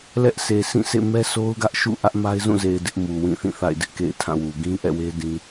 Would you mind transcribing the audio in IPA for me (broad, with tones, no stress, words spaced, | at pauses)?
lɛ˦ʔsʰe˨ sʰĩ˦˨sʰḛ˦˨ mɛ˦sʰo˦ʊ̯ɡä˦ʔʃṵ˦˨ ʔä˦ʔma˦ɪ̯ zũ˦˨ze˨ɪ̯ dɪ˦ʔmu˨ wĩ˦˨θĩ˦˨θa̰˦˨ɪ̯ dɪ˦ʔkḛ˦˨ɪ̯tʰã˦˨wu˨ ɡĩ˦ʔɛ̰˦˨we˦ dĩ˦